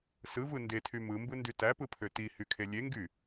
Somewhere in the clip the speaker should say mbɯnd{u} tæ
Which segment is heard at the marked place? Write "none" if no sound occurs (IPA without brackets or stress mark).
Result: y